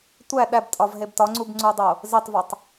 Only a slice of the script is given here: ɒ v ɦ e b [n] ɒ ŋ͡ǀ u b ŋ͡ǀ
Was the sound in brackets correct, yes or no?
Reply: no